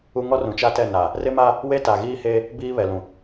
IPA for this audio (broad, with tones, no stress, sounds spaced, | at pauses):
u˦ ŋ ɔ˦ r ũ˨ t͡ʃ a˦ t ɛ˦˨ n a˨ | r ɪ˦ m a˦ | w e˦ t a˨ ɣ iː˦ h e˦ | b iː˦ β ɛ˨ l ũ˨